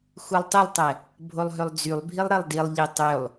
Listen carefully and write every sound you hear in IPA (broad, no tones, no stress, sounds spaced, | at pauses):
x u lˠ tˤ ə lˠ tˤ ɛ | bʱ o lˠ ɦ ø lˠ d͡z y lˠ bʱ i lˠ ɾ e lˠ d i lˠ ʎ e tˤ ø lˠ